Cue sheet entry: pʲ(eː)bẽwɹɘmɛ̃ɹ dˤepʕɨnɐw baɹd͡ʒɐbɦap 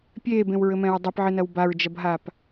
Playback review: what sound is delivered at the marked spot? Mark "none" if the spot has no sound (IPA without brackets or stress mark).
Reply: eː